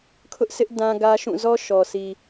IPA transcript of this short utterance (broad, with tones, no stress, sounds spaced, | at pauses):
kʰ ʊ˦ ʔ s ɪ˦ ʔ d ã˦ ɡ ä˦ ʃ ũ˦˨ z ɔ˦ ʃ ɔ˨ sʰ i˨